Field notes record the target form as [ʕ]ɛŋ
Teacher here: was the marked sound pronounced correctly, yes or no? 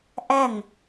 no